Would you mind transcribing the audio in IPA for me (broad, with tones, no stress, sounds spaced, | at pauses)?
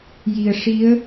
j i˨˩ ə̯ ʂ i˧˥ ə̯